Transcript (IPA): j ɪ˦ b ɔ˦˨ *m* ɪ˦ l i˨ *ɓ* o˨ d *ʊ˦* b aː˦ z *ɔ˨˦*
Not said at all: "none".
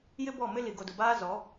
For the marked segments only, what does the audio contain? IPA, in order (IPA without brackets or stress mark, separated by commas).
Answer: m, ɡ, ʊ˨, ɔ˨˦